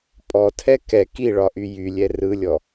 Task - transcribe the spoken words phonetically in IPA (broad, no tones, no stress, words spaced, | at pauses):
pʼɔtʰɛ kɛ kiɭɒʔy jylʲɛ rɯlʲɔ